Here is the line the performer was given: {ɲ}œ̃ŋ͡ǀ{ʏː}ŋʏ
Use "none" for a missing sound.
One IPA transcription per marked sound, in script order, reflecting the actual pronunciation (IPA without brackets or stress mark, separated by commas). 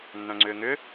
nː, ʏː